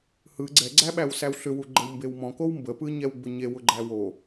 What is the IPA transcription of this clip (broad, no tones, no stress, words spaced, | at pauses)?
hɯ ɡ͡ǀɛɡ͡ǀæ ɓæwsæwɬʏwu ɡ͡ǃəwmbewmɔ̃kow mbəpɯɲɛw ɡ͡bʊɲe wʊɡ͡ǃæwo